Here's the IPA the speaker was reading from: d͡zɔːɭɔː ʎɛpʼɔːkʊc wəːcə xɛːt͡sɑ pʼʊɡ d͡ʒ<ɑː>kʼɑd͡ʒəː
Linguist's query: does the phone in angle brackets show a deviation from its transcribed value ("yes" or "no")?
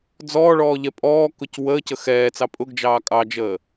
no